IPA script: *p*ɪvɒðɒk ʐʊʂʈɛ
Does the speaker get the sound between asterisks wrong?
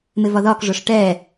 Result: yes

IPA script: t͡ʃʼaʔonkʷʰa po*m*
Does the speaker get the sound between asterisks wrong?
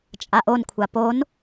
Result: yes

